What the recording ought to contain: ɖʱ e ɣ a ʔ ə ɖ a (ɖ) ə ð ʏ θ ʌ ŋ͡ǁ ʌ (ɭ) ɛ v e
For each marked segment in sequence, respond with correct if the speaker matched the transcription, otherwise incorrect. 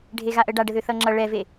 correct, correct

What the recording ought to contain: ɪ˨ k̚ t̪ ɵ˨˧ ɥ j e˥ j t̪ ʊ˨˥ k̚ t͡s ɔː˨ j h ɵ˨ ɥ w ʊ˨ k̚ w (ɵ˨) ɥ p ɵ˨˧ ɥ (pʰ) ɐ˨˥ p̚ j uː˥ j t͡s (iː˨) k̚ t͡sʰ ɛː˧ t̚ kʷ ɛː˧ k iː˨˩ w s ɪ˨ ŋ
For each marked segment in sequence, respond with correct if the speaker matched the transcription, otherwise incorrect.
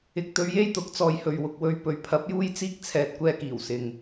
incorrect: ɵ˧, correct, incorrect: iː˥

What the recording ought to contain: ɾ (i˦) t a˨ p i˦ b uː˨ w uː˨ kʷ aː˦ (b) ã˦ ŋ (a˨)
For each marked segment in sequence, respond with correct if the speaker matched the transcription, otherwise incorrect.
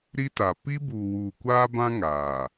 correct, correct, incorrect: aː˨

